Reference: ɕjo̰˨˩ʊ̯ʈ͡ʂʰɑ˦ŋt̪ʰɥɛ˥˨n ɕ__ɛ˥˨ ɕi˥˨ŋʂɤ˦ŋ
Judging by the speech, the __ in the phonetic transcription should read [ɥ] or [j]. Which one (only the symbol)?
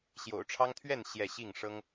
j